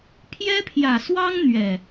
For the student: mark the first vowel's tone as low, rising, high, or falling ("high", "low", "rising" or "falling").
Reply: high